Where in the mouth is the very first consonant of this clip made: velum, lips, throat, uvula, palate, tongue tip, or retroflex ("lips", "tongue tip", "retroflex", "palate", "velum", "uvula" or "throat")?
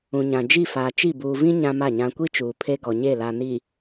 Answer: palate